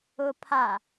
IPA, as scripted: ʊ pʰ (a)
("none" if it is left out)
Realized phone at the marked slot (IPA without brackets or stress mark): a